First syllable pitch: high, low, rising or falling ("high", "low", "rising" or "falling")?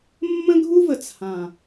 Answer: high